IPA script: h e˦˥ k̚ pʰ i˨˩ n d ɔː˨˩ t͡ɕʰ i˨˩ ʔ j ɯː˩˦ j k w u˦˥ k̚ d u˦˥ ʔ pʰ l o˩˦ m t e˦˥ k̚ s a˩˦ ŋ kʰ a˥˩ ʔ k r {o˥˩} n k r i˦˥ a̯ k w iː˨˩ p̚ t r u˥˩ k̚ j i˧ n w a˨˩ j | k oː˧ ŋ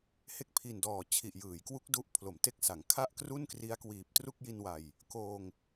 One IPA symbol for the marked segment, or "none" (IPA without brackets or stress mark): u˥˩